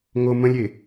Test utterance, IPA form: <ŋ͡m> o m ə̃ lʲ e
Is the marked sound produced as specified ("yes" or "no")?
no